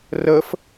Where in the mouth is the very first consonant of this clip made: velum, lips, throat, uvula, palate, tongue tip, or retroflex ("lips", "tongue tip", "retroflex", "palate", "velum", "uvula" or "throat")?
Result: tongue tip